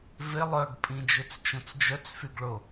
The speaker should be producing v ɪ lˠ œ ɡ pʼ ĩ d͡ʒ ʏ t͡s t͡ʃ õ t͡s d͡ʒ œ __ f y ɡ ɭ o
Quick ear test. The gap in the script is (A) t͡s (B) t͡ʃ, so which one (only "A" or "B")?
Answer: A